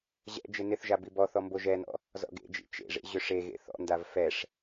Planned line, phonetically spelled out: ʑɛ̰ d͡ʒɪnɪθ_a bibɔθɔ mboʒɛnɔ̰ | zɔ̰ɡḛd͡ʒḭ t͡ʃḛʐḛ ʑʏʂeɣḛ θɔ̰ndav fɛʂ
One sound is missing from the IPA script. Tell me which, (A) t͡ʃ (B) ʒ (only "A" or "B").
B